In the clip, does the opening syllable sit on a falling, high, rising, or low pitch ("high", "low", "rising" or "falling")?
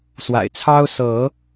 low